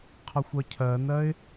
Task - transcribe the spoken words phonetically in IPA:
qʰ ʌ xʷ ʌ cʰ ɜ n ɜ ɪ̯

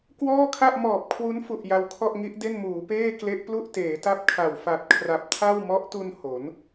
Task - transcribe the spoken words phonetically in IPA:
k w ɔː˥˩ kʰ a˥˩ ʔ m ɔː˨˩ p̚ kʰ w u˦˥ n f u˨˩ ʔ j a˧ w kʰ ɔ˥˩ ʔ ŋ i˦˥ ʔ d e˥˩ n m uː˩˦ p eː˥˩ k l e˦˥ ʔ p l u˥˩ ʔ t eː˩˦ t a˥˩ p̚ kʰ a˨˩ w f a˨˩ t̚ kʰ r a˨˩ p̚ tʰ a˥˩ w m ɔ˦˥ ʔ t u˧ n h o˩˦ n

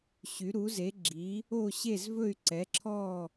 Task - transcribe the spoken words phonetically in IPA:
ɕ y˧˥ ɾ u˧˥ z e˧˥ ɡ͡ǁ i˧˥ | o˥˧ ɕ e˥˧ z v ɵ˥˧ y̯ ǀ ɛ˧˥ ǁʰ ɔ˥˧

